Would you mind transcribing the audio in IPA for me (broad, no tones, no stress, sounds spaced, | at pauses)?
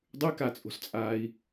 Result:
dˤ ʉ k a t͡sʼ o̤ s t͡sʼ aː i̯